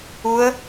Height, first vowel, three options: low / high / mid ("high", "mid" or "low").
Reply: high